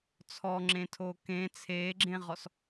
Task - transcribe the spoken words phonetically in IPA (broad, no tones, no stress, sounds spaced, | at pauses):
t͡sʰ ɔ ŋ͡ǁ ẽ tʰ oː k ẽ t͡sʰ eː ɡ͡ǁ ẽ ʁ ɔ s